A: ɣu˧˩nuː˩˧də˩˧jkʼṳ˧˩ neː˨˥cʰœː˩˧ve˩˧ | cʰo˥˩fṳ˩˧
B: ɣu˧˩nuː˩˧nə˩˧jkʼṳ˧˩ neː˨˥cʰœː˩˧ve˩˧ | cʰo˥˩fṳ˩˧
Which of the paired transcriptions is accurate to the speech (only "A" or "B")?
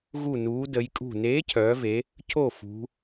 A